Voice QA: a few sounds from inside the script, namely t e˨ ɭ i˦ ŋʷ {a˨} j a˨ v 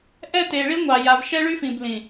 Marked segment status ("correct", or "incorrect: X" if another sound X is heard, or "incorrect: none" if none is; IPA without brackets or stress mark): incorrect: ɑ˨